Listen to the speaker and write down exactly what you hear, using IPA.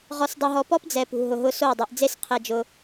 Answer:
ʁ ɔ˧ s dˤ e˧ ɦ ɔ˧ p ɔ˦ p d͡z ɛ˨ p ṳ˨ ɦ ʊ˨ ɦ ʊ˧ s o˦˨ dˤ ɛ˧ ʔ d͡z e˦ s qʰ e˧ d͡ʒ ʊ˧

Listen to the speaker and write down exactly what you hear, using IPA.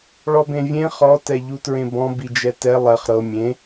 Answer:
ɭ ɔ b ẽ vʲ ẽ χ ɔ t ɛ ʎ u t ɹ ẽ b ɔ̃ b i d͡ʒ ɛ t ɛ lˠ ɛ χ ɾ ɤ mʲ ẽ

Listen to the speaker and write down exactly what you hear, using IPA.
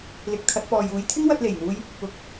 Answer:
l ɪ˨ k̚ t̪ʰ ɐ˧ t̚ p ɔː˨ j uː˨˧ j t̪ʰ ɪ˥ ŋ w ɐ˧ t̚ l e˨˩ j n̪ uː˧ j | ʊ˨˥ k̚

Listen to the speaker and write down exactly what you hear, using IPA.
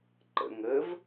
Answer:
ǃ ə̰ ŋ ə v

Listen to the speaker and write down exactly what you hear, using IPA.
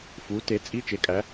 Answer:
f u˩˥ t e˩˥ t͡sʼ i˧˥˧ t͡ʃ e˩˥ kʼ æ˩˥

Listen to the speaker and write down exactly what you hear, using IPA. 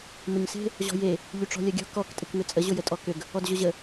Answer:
m ʊ ɲ s e̤ | ʑ ɔ̤ j e | ʎ y ʈ͡ʂ ɔ̤ lʲ ɐ ɡʲ ɔ̤ k ɔ k tʼ ɪ k m ʏ t͡sʼ ə ʑ ʊ j ə tʼ ɔ k ʏ ɡ | ɔ d ʑ ʊ ʑ ə

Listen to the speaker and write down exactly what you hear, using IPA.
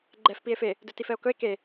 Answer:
ɡ͡ǃ ɛ f p i e̯ f e | d ɵ t i f ɛ o̯ k ɵ e̯ k e

